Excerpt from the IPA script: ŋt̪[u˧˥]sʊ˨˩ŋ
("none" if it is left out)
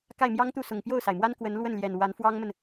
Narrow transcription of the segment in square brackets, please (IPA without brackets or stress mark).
u˥˩